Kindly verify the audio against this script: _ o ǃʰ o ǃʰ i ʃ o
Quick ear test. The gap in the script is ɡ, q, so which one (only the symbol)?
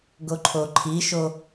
ɡ